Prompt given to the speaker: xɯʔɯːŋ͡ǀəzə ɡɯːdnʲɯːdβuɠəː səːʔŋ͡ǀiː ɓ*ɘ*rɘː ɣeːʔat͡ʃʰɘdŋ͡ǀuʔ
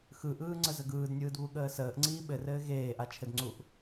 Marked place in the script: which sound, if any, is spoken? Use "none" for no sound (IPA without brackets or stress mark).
ɘ